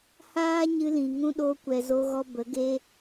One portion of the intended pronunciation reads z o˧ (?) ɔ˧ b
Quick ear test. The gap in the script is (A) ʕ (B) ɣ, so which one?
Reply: B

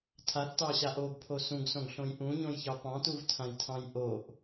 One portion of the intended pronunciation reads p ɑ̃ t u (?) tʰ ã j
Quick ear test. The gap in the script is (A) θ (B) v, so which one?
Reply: B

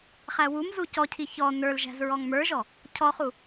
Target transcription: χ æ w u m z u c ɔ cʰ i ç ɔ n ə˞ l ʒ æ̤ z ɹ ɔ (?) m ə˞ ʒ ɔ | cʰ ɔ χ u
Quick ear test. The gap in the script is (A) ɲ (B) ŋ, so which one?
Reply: B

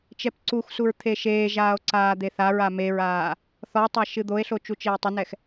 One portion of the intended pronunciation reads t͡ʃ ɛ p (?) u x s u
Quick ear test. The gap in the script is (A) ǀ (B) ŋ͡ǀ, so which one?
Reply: A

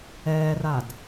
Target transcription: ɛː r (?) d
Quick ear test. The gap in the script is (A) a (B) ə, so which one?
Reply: A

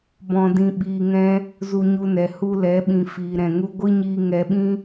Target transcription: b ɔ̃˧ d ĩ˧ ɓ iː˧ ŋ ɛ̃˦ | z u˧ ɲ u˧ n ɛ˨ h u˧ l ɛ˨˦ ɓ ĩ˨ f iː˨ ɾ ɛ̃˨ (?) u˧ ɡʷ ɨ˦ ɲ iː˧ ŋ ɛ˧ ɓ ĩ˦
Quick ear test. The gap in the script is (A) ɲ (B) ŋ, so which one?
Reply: B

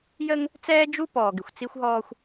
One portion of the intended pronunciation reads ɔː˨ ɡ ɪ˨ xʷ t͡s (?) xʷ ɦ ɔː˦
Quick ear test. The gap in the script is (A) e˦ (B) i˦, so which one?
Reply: B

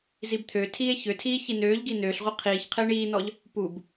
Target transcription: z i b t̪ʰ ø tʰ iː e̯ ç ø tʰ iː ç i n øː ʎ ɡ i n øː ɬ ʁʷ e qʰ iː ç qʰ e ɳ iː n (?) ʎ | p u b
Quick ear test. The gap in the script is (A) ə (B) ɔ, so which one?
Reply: B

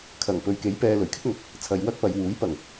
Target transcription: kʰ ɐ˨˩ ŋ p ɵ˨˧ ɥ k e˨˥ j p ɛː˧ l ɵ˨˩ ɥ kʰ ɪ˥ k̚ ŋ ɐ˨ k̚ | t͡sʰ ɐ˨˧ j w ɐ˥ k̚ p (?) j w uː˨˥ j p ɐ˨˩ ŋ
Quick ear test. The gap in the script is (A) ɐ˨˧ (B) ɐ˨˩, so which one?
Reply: A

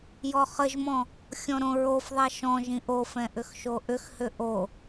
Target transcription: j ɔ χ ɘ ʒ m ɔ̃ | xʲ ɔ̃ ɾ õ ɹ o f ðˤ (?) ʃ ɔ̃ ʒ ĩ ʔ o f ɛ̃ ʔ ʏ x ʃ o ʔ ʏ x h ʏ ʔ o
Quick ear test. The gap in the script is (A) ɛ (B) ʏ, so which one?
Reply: A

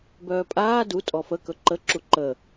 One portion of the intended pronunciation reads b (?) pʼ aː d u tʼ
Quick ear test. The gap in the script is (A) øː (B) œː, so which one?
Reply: B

